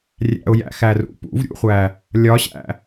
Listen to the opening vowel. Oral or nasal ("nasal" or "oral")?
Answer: oral